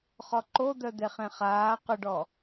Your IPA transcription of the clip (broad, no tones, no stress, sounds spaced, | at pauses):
χ ɔ ǃ o d̪ œ d̪ e χ ẽ χ aː q ʊ ɖ ɔ